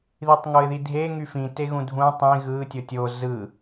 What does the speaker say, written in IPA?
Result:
ðitˤŋoɪ̯ðidʱe ŋyfĩteɣũ dʱũ tˤĩ ɣɯ tʲotʲo zɯ

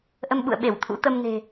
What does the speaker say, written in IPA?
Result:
ʔə˧mɓṵ˧˨ə̯ ɓe˧˩w t̪ʰṵ˧˥ t̪ə˧mne̤˨˩

